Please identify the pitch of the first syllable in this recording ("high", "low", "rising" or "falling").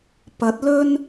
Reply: rising